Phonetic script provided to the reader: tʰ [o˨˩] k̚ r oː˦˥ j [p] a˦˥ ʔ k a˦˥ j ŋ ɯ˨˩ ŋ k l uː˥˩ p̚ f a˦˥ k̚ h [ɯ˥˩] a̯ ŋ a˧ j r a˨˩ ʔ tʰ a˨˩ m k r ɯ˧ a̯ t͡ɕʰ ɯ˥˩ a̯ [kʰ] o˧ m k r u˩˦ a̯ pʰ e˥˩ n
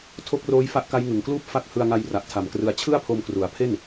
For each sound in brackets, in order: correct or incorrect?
incorrect: o˦˥, incorrect: f, incorrect: ɯ˧, incorrect: pʰ

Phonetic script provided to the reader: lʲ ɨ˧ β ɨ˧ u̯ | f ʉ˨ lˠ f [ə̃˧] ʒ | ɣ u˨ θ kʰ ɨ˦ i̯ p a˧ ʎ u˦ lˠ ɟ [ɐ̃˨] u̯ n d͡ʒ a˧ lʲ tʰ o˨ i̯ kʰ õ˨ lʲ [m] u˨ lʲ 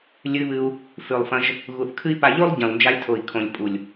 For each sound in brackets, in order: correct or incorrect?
incorrect: ɐ̃˧, correct, incorrect: pʼ

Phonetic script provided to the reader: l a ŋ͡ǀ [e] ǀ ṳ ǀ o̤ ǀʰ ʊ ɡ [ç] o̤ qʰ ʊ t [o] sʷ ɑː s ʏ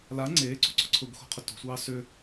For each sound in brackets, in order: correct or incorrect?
incorrect: eː, incorrect: x, incorrect: o̤

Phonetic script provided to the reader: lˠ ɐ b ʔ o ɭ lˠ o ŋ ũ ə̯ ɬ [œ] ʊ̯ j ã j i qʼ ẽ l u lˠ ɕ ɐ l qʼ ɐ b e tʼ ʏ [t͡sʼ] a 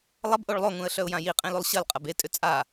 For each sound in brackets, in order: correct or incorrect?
correct, correct

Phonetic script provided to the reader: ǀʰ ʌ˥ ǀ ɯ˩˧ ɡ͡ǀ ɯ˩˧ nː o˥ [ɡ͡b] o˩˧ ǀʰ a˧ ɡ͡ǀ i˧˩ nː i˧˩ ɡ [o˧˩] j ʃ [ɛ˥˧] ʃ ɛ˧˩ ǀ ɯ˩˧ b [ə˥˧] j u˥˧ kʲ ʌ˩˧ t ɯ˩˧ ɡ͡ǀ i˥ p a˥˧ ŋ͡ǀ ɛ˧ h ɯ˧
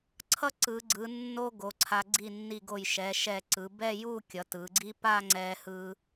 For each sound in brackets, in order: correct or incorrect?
incorrect: ɡ, correct, incorrect: ɛ˩˧, incorrect: ɛ˥˧

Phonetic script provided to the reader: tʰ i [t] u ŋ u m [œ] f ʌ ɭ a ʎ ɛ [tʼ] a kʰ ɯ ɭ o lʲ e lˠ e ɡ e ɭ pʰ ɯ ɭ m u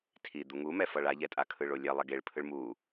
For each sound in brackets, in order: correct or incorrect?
incorrect: d̪, incorrect: ɛ, correct

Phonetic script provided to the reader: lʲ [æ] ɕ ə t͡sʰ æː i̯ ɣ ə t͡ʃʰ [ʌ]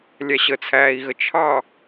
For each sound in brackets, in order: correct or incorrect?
correct, incorrect: ɑ

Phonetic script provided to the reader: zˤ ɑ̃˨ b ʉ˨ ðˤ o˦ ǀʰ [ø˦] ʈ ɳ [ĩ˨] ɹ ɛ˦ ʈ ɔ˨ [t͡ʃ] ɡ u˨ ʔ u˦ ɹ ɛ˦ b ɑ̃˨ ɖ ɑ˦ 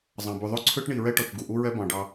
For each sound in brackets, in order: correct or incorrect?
correct, incorrect: i˨, correct

